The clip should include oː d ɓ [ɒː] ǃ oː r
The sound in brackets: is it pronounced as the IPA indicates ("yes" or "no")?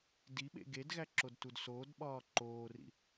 yes